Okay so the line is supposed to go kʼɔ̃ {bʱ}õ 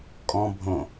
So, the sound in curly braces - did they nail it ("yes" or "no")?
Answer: yes